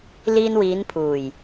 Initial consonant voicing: voiced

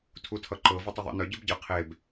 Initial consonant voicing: voiceless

